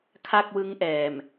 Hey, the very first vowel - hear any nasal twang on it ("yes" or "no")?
no